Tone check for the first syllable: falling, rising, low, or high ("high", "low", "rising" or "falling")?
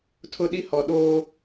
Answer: high